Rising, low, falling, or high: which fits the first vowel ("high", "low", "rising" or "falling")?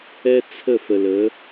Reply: high